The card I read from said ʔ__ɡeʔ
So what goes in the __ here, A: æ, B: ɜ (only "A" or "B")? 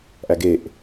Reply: A